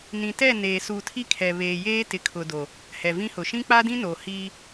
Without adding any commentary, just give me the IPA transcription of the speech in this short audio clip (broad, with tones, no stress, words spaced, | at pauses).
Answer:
nĩ˨tɛ˦˨ neː˨suː˨tʰi˦kʰɛ˨ βeː˨jeː˦ tɪ˨kʰʊ˨do˨ | hɛ˨vĩ˦hʊ˨ ʃĩ˦k͡pa˦dĩ˦noː˨ hiː˦